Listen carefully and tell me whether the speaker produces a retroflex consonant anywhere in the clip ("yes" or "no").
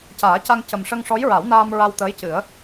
yes